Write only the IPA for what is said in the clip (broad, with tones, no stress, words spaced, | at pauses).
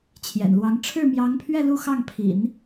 t͡ɕʰjɛ̰˨˩nlwɑ˧˥ŋ ʈ͡ʂʰɻ̩˥˩mjɑ˧˥ŋpʰɥɛ˥˧ lu˥˧xɑ˥˩ŋpʰḭ˨˩˦n